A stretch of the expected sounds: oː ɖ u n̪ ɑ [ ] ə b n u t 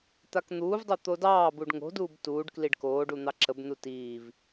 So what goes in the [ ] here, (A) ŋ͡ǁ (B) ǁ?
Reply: B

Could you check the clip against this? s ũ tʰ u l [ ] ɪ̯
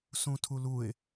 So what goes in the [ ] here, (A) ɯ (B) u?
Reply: B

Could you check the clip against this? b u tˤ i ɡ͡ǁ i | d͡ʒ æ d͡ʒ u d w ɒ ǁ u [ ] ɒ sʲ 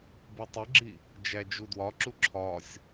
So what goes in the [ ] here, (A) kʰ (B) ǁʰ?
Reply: B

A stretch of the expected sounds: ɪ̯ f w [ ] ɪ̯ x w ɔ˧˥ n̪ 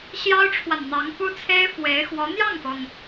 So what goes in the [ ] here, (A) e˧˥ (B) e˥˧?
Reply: A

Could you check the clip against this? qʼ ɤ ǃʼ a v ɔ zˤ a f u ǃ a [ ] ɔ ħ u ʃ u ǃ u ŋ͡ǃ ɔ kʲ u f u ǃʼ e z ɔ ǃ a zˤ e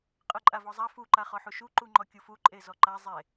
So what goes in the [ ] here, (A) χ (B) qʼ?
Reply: A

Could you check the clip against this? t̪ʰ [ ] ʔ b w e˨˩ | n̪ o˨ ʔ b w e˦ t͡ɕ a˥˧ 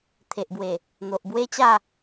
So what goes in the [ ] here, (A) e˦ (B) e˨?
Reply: B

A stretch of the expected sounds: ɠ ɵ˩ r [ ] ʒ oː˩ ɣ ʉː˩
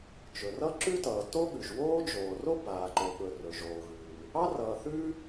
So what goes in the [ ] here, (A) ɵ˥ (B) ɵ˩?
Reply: B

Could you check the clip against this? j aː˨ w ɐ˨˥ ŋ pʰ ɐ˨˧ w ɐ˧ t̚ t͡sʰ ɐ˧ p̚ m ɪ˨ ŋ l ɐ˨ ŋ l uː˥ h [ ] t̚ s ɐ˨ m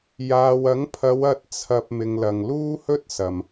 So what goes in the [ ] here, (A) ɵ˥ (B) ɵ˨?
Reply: A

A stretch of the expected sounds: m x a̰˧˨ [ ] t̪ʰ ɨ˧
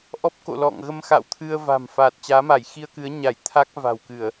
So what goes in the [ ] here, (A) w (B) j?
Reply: A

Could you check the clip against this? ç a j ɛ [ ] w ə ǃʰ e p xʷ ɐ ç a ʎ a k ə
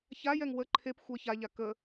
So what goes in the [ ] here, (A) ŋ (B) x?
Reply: A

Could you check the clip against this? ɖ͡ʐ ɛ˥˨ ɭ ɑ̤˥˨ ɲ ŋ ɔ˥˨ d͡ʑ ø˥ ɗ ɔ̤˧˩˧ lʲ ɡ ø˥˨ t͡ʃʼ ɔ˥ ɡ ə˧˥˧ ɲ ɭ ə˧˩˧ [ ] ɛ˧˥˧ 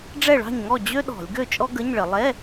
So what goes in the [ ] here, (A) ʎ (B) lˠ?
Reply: B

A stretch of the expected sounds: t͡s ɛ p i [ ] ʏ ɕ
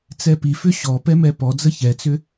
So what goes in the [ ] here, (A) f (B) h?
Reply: A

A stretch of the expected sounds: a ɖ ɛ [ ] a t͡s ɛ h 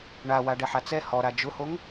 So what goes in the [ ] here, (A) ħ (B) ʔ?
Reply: A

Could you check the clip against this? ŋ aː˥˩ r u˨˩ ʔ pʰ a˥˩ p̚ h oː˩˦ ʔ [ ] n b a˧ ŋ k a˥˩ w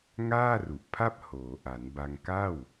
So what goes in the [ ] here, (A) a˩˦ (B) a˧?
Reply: A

